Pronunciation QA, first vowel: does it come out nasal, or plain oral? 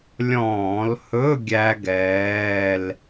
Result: nasal